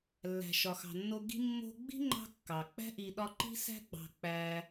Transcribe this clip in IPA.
lː æ̤˩ ʃ ɒ˩ x ɑ̤˩ nː o˦ ɡ i̤˥ mː o̤˥ ɡ͡b i̤˥ ŋ͡ǃ ɑ̤˦ kː ɑ˩ k͡p æ̤˥ ʔ i˨ ɗ ɒ˦ ǃ i̤˥ s æ̤˥ ɡ͡b ɑ̤˨ k͡p æ˨

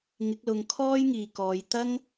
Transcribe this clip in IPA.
ŋ ɪ˨˥ k̚ l ʊ˨ ŋ kʰ ɔː˥ j ŋ iː˨ k ɔː˨˧ j t̪ ɐ˥ ŋ

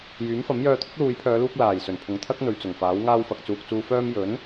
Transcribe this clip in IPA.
j yː˨˥ m f ɐ˨˥ m j œː˧ t̪ʰ ʊ˥ k̚ l uː˨˧ j pʰ œː˨˧ l uː˧ k̚ l aː˨˩ j s ɵ˨˩ n pʰ ʊ˨ ŋ t̪ʰ ɐ˥ k̚ n̪ ɵ˨˧ ɥ t͡s ʊ˨˩ ŋ f aː˨˥ w ŋ aː˧ w f ɐ˨ k̚ t͡s uː˨ k̚ t͡s uː˧ f œː˥ m j ɵ˨˥ n

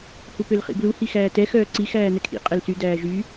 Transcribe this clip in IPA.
h u p ø l χ ḭ b l u h i x æː t ɛ x œː ǀ i x æː n̪ ɛ kʰ ḭ qʼ ɛ l s y d æː ʒ y

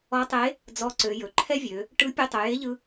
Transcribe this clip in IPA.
ɔ˧˥ tˤ e˧˥ | d͡z ɔ˧˥ ǀ ø˩˧ j ɵ˩ ǃʰ ɛ˥ vʲ ø˩˧ | ʈ ɯ˧˥ pʲ ɵ˧ tˤ ø˩˧ j e˧˥ ʎ ɯ˧

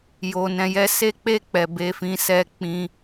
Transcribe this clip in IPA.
j o˨ n ɛ̃˨ j ɛ˧ s e˦ k͡p e˦˨ k͡p ɛ˨ b e˨˦ f ĩ˧ s ɛ˦ k͡p ĩ˧

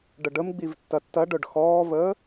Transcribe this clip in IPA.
ɖ ə ɖ ə m ɡ͡b i v tː ɐ tː ɐ ɖ œ ɖ x ɔː v əː

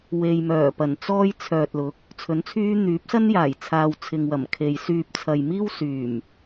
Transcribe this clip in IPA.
w e˨ j m œː˨˩ p ɐ˨˩ n t͡s ɔː˥ j t͡sʰ œː˨ t̚ l ʊ˨˥ k̚ | t͡sʰ ɵ˨˥ n t͡sʰ yː˥ n̪ yː˨˥ p̚ s ɐ˥ n j aː˨˩ j t͡sʰ aː˨ w t͡sʰ ɪ˨ ŋ w ɐ˨˩ m kʰ e˨ j s yː˧ p̚ t͡sʰ ɐ˨ j m iː˥ w s yː˨˩ m

